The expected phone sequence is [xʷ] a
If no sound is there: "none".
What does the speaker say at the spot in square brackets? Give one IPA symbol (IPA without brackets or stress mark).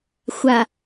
xʷ